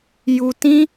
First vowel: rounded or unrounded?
rounded